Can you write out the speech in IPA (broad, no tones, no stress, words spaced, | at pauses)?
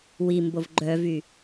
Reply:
wimbov ɡ͡ǃœvy